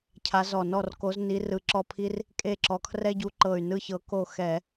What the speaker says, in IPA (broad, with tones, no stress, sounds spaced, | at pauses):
cʰ a˨˦ z ɔ˨˩ n ɔ˦˨ r k o˨˦ z n i˨˦ r ɯ˨˩ ǁ ɔ˦˨ pʰ i˦ r | kʼ e˦˨ ǁ ɔ˨˦ kʰ r ɛ˦ ɟ u˨˦ ǃ ɤ˨˩ y̯ n ɯ˦˨ ç ɤ˨˦ k o˦˨ x ɛ˧˩˧